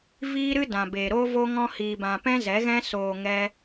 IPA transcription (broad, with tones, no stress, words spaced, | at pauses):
viː˦ɾɨ˦dã˨be˨ ɾo˦vo˦ ŋɔ̃˦hiː˧bã˧ pɛ̃˦zɛ˨˦ɣɛ̃˦ soː˧ ŋɛ˦